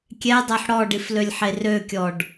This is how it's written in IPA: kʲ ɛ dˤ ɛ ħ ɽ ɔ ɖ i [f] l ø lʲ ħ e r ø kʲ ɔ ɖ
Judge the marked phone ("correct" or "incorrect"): correct